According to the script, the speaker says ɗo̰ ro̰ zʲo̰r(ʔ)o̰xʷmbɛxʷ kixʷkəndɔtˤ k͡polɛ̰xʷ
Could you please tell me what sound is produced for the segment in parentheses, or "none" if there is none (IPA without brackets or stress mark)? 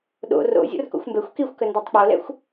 k